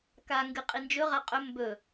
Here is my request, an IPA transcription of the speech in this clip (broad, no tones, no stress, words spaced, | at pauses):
ka ŋɡɨqʼind͡ʒɵ ʁaqʼɵ mbɵ